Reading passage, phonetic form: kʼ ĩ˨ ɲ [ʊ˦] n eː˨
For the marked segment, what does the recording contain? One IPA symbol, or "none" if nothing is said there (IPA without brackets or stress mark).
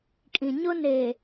ʊ˦